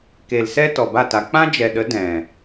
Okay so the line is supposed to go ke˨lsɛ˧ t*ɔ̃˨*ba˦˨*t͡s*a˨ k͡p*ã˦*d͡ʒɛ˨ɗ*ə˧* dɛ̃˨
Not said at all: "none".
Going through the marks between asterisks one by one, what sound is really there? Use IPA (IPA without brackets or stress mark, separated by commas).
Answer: ɔ˨, t, ã˦, ə˨˦